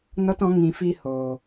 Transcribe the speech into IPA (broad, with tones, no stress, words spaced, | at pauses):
nɔ˦tɔ̃˨˦ ŋĩ˨fi˧ hoː˨